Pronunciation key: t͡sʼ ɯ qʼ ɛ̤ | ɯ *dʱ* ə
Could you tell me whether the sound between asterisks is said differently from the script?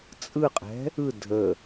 no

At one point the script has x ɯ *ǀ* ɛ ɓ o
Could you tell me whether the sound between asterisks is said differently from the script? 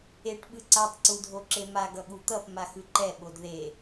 yes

